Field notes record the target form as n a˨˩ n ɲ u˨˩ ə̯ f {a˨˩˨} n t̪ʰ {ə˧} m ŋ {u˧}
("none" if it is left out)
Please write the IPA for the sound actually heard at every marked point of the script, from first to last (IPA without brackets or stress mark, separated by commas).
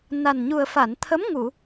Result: a˨˩˨, ə˧˥, u˨˩˨